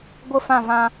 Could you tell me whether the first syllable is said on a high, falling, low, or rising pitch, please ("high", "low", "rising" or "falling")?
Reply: falling